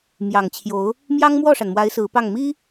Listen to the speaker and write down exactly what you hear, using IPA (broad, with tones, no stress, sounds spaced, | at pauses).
m j ɑ˨˩ ŋ t͡ɕʰ j o˧˥ ʊ̯ | m j ɑ˥ ŋ m w ɔ˥˩ ʂ a˩ n m w a˧˥ ɪ̯ s ɹ̩˧˥ p ɑ˥˩ ŋ m i˥